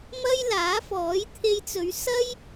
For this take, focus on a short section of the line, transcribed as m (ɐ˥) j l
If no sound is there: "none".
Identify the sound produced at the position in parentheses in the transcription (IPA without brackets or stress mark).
ɐ˥